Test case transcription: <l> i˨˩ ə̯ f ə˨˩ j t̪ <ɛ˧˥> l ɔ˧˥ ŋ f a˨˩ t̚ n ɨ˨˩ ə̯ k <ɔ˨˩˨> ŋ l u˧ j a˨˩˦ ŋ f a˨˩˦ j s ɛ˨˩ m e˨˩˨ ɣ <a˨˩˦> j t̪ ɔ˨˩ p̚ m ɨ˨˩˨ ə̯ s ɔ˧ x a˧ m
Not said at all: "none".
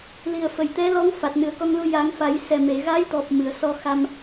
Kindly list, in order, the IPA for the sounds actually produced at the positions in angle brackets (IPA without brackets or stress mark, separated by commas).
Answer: l, ɛ˧˥, ɔ˧, a˧˥